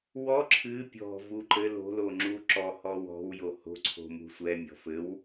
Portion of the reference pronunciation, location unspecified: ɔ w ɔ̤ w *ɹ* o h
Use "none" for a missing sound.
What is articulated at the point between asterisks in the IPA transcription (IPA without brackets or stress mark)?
j